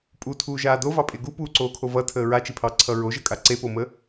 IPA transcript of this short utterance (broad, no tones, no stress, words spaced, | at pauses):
pʼutʰuːʒaː dovɑpʼe ɡupuːǀoːkʰo vʌtʰəː ɹat͡ʃipʰɑǀʰʌ ɹoʒʌkʼa ǀepomə